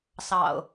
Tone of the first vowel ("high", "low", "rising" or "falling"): low